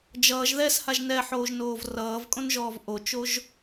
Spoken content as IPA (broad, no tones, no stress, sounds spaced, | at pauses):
d͡ʒ ʌː ʒ ð ɛ s h a ʒ n ɛ ħ oː ʒ n oː v r ʌː v kʼ õ n ʒ ɔː v ʔ o t͡ʃ o ʒ